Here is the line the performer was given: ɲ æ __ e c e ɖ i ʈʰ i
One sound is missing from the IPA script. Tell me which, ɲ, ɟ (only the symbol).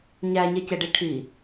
ɲ